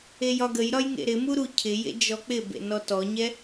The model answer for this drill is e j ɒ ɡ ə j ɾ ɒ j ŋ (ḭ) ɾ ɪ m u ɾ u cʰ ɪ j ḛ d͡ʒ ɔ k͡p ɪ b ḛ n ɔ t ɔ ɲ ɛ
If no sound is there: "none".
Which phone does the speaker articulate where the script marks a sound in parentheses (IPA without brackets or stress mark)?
ḛ